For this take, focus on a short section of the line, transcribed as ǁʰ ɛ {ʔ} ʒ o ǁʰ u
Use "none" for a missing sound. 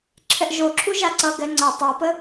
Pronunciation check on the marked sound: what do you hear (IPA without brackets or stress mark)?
ʔ